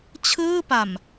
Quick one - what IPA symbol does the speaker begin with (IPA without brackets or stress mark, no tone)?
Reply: t͡ɕʰ